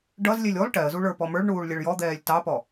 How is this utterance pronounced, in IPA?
ɖ ʌ z lʲ ɛ lʲ u lˠ ʈ ɛ ə̯ z u ɭ ə˞ p ɔ m ə˞ ɭ ɳ uː ɭ lʲ ʌ ɭ j ɔ d̪ ɛː lʲ t ɑ p ɔ

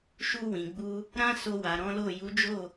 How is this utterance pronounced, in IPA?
ʃ u˧ w ĩ˨ ɡ͡b u˧ | ɾ ã˦ s o˧ w a˨ ɾ ɔ̃˨˦ l o˦˨ j u˨˦ d͡ʒ o˦˨

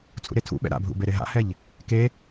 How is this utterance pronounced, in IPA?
t͡sʼ ṵ ɾ e tʰ ṵ ɓ ɛ̰ ɾ a̰ bʱ ṵ b e ɾ e ɦ a̰ h ɛ ʎ | k e

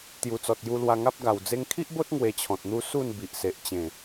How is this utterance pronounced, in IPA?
t̪ j u˨˩ t͡s ɔ˨ t̚ j u˧ l w a˧ ŋ a˦ p̚ ɡ a˨˩ w d͡z e˧ ŋ kʰ i˦ ʔ b o˦ t̚ ŋ w e˧ t͡ɕʰ ɔ̃˨ t̚ n̪ u˦ s u˥˧ n b i˨ ʔ s e˨ ʔ t͡ɕ ẽ˨˩

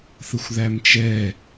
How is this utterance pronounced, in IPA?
θ ə xʷ ð æ m t͡ʃ ɛ

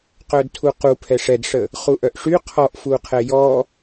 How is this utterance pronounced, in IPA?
q œ d tʰ u q u pʰ ɛ ʂ ɛ d ʂ ə | χ u ʔ œ ʔ ʂ y qʰ ɔ ʔ f u qʰ ɛ j ɔ

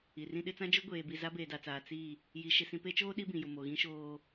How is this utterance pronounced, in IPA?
i˨ r ĩ˦ ɗ ɪ˦ t͡s ã˦ d͡ʒ o˦ ɡʷ eː˨ b i˦˨ z a˦ b eː˨ d a˨ t͡s aː˨ t͡s i˦˨ | j i˨ ʃ ɪ˨ s ĩ˨ p e˦ t͡ʃ oː˦ ɗ i˦ b ĩ˨ j ʊ˨ m o˨ ɣ ĩ˦ ʃ oː˦

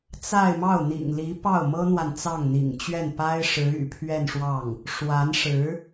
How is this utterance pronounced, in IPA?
t͡s a˥˧ ɪ̯ m ɑ˥˩ ʊ̯ n̪ ḭ˨˩ ŋ l i˧˥ p ɑ˥˩ ʊ̯ m ɤ˥ n̪ w a˨ n t͡s ɑ˥˩ ŋ n̪ ḭ˨˩ ŋ t͡ɕ ɥ ɛ˥˩ n p a˥ ɪ̯ ʂ ɻ̩˧˥ y̰˨˩ pʰ ɥ ɛ˥˧ n ʂ w ɑ˥˩ ŋ | ʂ w a˧˥ n ʂ ɻ̩˧˥

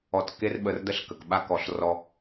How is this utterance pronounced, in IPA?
ɔ˨ t kː e˦ r ɓ ə˨ r d ə˦ ɬ k ə˨ k ɓ a˦ k ɔ˨ ɬ r ɔ˦

